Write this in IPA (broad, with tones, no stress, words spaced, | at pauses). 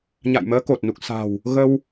ɲa̰˧˨jməː˨˦ko˨˩t̚nu˨˩k̚ sa̤˨˩w | ɣə˧w